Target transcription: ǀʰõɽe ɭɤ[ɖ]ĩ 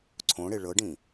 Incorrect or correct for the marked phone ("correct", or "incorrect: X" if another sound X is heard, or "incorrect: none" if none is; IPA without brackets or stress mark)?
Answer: correct